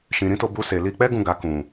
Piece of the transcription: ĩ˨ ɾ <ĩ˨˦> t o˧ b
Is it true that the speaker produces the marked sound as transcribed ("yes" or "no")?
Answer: yes